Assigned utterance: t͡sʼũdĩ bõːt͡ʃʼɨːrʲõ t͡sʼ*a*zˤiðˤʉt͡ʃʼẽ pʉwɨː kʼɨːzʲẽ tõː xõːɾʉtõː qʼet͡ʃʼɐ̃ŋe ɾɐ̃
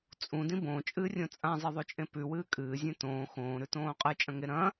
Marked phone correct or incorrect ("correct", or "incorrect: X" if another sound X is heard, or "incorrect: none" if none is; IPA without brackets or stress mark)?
incorrect: ã